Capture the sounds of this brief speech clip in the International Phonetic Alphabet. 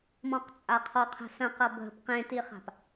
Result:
m ɔ̃ q t͡sʼ a qʰ ɔ qʰ ə̤ s ə̃ q ʌ bʱ ə̤ p q ẽ t i χ a̤ p

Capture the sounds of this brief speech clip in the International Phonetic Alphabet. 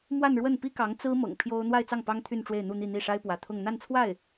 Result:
m w a˥˧ n ɻ w ə˥˩ n p i˥ k ɑ˧˥ ŋ t͡s ɹ̩˥ m ɤ̰˨˩ ŋ pʰ j o˥ ʊ̯ n̪ w a˥˧ ɪ̯ t͡s ɑ˥˩ ŋ p ɑ˥ ŋ t̪ʰ y˥˧ n ʈ͡ʂ w e˥˧ ɪ̯ n̪ u˥˧ n̪ i˥˧ n̪ i˥˩ ʂ a˥ ɪ̯ p w ä˧˥ t̪ʰ ʊ˥˧ ŋ n̪ a˥˧ n t͡sʰ w a˥˩ ɪ̯

